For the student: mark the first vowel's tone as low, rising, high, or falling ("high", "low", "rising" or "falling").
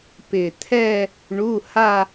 low